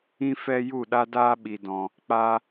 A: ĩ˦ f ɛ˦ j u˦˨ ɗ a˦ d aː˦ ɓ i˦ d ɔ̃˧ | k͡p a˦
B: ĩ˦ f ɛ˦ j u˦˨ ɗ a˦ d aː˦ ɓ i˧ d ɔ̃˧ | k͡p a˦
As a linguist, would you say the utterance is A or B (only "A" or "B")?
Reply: B